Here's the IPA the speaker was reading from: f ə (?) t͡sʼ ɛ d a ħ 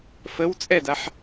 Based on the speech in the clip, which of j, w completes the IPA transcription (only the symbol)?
w